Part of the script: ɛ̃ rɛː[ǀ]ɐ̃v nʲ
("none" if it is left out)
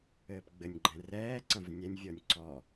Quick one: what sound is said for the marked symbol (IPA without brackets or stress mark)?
ǀ